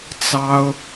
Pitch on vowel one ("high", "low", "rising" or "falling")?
high